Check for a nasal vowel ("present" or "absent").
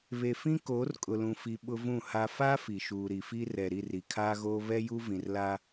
present